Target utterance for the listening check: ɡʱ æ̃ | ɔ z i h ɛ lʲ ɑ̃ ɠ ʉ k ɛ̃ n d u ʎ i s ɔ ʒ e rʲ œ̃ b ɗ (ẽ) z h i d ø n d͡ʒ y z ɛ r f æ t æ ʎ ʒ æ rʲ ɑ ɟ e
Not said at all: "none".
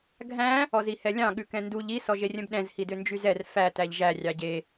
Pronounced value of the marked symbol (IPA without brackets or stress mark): ɛ̃